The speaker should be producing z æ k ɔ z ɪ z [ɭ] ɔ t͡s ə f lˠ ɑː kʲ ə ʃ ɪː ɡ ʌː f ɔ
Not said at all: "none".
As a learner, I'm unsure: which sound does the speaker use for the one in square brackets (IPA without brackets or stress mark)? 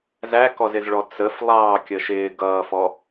ɭ